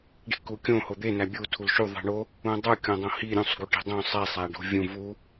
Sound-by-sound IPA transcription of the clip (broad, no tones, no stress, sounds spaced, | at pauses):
ɖ i̤ k u kʲ õ h o d̪ e n æ bʲ u tʰ u l ʃ u ðˤ i̤ ɳ o | ũ dˤ u kʲ õ dˤ õ h i ɾʲ ũ sˤ ɡ u ʈ i̤ dˤ õ sˤ e sˤ æ ɖ o̤ vʲ ũ v u